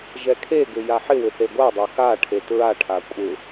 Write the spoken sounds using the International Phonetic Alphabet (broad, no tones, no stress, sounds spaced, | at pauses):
ʒ ɛ kʰ e ɡ ʏ j a ħ ɪ w ʏ θ e ɡʷ a dˤ o x a ʈʰ e t ɹ a ʈʰ a kʷʼ ɪ